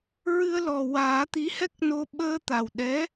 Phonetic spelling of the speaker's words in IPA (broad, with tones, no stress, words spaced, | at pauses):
ɹɨ˧ə̯lɔ˨˩waː˨˩˦ t̪i˧˥hɛ˦˥k̚no˧ ɓəː˧t̪a˨˩wɗɛ˧˥